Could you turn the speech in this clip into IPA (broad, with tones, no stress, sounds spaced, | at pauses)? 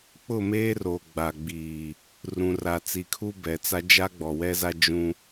k͡p ʊ˦˨ m eː˦ r o˨ ɡ͡b a˨ ɡ͡b iː˨ | r ũ˨ r a˨ t͡s i˨ kʰ u˦ b ɛ˨ t͡s a˦ d͡ʒ a˦ ɡ͡b ɔ˨ w ɛ˦ z a˦ d͡ʒ ũ˦